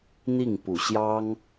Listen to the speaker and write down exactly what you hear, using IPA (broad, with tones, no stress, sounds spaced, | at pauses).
n̪ i˥˩ ŋ p u˨˩ ɕ j ɑ˥ ŋ